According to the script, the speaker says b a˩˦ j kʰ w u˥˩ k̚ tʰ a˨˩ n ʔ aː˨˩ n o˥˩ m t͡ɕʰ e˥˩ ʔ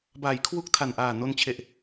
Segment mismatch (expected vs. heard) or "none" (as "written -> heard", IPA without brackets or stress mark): m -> n